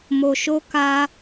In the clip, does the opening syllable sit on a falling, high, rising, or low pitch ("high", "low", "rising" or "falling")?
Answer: low